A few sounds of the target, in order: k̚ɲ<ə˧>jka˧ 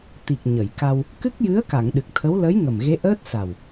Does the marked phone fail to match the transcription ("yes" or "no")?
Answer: yes